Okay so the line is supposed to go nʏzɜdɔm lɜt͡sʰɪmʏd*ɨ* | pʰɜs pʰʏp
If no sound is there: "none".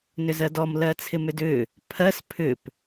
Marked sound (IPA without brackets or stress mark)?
ʏ